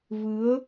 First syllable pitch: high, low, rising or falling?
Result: rising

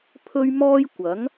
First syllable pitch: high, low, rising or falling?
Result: high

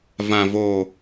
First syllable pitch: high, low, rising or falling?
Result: low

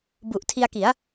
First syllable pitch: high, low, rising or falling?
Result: low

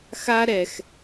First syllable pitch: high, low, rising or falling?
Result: high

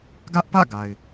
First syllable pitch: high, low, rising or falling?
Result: high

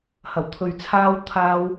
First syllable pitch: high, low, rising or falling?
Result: low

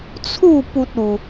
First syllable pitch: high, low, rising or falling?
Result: falling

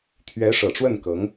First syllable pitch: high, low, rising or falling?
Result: rising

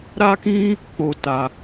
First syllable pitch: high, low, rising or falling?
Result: high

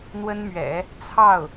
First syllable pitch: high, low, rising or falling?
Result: high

